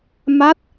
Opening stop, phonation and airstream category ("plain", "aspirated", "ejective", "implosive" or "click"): plain